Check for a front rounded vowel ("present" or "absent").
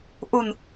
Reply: absent